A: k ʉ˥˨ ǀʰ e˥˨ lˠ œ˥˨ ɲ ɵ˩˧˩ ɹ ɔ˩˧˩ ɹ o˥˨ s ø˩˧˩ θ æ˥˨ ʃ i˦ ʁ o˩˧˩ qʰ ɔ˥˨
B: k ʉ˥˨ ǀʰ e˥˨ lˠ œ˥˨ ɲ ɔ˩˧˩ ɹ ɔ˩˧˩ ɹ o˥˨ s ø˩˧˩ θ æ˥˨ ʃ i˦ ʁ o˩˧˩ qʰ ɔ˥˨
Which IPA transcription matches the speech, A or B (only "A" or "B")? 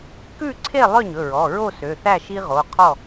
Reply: A